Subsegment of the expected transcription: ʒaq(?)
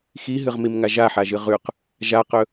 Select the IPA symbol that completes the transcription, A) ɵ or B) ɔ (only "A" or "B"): A